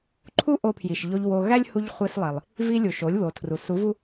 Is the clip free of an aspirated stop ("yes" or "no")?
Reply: no